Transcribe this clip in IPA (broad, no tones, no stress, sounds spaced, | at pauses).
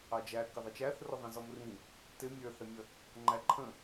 ɑ d͡ʒ æ k ə ðˤ ʌ t͡ʃ æ θ r ʊ ðˤ ĩ z ɔ m r ĩ | t ɪ mʲ ə˞ θ ɛ mʲ ʌ | ŋ͡ǃ æ ǃʰ ə̃